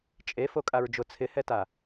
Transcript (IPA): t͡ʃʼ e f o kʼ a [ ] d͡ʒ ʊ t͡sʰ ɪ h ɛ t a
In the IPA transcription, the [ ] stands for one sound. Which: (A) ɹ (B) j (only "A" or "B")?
A